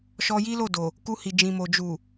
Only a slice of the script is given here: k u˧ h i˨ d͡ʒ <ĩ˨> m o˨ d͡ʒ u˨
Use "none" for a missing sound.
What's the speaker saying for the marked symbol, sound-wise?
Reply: ĩ˨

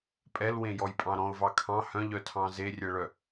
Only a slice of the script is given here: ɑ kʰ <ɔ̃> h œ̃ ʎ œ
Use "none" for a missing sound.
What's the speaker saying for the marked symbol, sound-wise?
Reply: ɑ̃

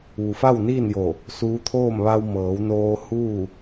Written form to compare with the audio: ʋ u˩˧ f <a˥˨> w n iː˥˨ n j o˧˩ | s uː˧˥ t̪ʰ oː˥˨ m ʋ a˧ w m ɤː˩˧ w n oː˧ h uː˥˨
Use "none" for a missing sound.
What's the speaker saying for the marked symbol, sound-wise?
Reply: a˥˨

